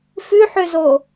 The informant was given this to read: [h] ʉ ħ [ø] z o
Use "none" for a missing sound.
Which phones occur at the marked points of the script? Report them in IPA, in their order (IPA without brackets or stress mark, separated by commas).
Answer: f, ø